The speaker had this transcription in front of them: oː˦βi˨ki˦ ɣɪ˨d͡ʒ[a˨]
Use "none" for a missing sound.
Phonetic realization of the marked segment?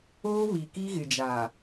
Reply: a˨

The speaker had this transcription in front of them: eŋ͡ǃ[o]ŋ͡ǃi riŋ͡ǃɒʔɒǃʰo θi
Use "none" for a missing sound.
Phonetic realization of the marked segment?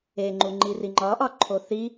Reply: u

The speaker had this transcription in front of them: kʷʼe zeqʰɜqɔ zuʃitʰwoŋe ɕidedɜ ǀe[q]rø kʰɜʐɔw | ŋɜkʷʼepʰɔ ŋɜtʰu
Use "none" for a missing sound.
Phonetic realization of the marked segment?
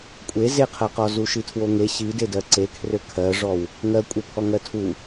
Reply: kʰ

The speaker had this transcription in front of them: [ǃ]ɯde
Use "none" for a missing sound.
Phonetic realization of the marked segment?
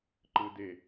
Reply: ǃ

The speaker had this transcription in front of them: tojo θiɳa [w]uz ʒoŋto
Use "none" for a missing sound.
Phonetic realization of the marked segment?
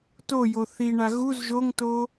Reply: ɣ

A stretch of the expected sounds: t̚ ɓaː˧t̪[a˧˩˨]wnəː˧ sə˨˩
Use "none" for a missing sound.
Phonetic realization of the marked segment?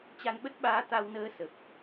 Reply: a˧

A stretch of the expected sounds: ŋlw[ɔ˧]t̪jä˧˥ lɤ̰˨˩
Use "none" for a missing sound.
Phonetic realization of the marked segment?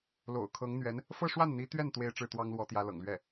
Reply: ɔ˧˥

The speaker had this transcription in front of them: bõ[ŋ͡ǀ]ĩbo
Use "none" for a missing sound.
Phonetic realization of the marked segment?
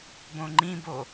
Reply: ŋ͡ǃ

